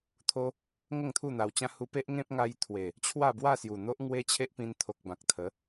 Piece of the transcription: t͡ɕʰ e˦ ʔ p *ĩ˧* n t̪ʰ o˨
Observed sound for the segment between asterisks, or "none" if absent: ĩ˧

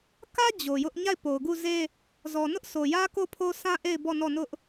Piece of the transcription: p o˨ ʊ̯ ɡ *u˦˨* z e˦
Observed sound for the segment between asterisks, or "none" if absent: u˦˨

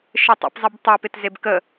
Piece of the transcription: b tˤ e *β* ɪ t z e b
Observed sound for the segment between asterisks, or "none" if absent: p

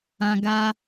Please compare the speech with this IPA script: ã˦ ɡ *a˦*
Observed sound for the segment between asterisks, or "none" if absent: a˦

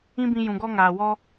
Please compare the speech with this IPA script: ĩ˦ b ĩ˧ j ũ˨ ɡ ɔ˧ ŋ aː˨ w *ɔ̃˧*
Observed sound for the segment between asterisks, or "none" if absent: ɔ˧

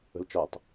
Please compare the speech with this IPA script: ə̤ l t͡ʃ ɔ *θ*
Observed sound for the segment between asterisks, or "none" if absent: tˤ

